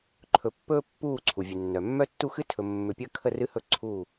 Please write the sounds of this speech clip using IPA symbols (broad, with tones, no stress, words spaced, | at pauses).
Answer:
ǃʰɵ˨pːɵː˦ pːuː˦˨ ǀʰu˨vʲɨ˨nːœ˨ mːœ˦tːu˦xɨ˦ tʰɵ˨mːʏ˨pʲəː˦kʰə˦˨ rɨ˦hɵ˦˨ ǀʰuː˦˨